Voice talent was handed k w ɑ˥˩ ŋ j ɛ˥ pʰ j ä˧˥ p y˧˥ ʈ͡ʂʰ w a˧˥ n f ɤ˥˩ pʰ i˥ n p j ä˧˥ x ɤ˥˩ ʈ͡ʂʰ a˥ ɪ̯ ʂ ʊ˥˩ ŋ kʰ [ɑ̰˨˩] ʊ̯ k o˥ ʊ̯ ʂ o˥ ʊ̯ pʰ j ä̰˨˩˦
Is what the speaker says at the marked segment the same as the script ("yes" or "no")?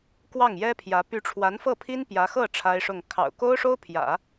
yes